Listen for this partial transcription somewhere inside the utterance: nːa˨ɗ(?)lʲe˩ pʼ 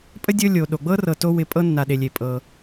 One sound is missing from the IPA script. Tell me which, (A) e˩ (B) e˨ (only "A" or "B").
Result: B